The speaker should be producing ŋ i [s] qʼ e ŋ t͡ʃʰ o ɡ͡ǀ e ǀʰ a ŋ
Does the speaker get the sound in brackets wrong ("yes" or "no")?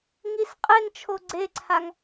no